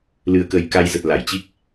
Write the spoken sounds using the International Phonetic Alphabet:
l ɨ˨˩ ə̯ k ə˨˩ j k a˧ j z ə˨˩ t̚ l a˧˩ j t͡ɕ i˦˥ k̚

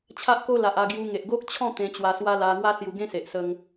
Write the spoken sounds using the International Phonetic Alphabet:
t͡ɕʰ a˦ ʔ k o˦ l a˨ ʔ a˧ ɡ j u˧ ŋ e˨ ʔ ɡ o˦ k̚ t͡ɕʰ ɔ̃˥˧ t̪ ẽ˧ t͡ɕ w a˧ s w a˦ l a˧ ŋ w a˦ s j u˧ ɡ ẽ˦ s e˨ ʔ s ə˧ ŋ

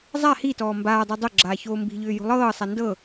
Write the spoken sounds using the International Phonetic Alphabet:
zˤ a h i t ɔː m b aː dˤ e dˤ o ɡ͡ǁ aː ç oː m b i̤ ʎ ʏː j o̤ lˠ ɤː sˤ a n d ɤ

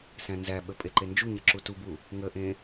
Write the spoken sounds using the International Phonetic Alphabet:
s æ̃ n z æ ɓ ə pʼ e ǃ e n d͡ʒ u ɲ ə ǁ u t u b u | ŋ ə ʔ ẽ

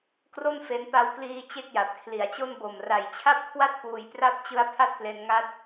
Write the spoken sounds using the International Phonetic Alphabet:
k r o˥˩ n f e˦˥ n p a˧ w k l iː˧ t͡ɕ e˥˩ k̚ j a˨˩ p̚ kʰ l i˨˩ a̯ t͡ɕ o˥˩ n b o˨˩ m r a˨˩ j t͡ɕʰ a˥˩ p̚ kʰ w a˥˩ t̚ p uː˧ j p r a˥˩ p̚ t͡ɕ ɯ˦˥ a̯ pʰ a˥˩ t̚ p l e˧ n ŋ a˦˥ t̚

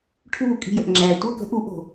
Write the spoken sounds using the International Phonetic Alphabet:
ʈʰ uː˧˩ kʼ i̤˧˩ j ə˩ ʔ ŋ͡ǁ æː˩ tʷ ɜ˥˨ k ə̤˦ ʔ u˨˩˦ ʔ o̤˩

